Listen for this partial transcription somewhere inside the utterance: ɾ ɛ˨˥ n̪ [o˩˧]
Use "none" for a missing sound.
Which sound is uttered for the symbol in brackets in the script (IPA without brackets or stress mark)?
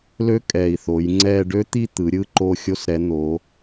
o˩˧